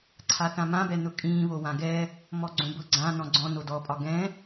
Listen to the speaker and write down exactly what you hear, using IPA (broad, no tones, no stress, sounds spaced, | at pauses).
ǀʰ a θ ã m ã b ɛ n ʊ kʼ ĩː β o w ã ɡ ɛ | m ɔ ɡ͡ǀ õ b ʊ ɡ͡ǀ ã n ɔ̃ ɡ͡ǀ ɔ̃ n o d ɔ pʼ ɒ ɡ ɛ̃